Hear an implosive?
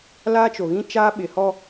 yes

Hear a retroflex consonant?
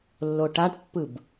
yes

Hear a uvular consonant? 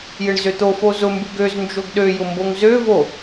no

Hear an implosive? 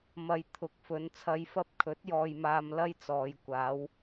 no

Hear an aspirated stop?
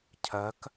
yes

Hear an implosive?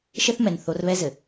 no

